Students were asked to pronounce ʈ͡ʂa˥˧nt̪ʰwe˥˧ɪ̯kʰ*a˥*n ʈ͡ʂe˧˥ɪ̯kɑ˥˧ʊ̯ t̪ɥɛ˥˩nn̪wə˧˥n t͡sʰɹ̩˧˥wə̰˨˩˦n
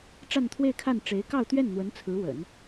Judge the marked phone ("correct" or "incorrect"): incorrect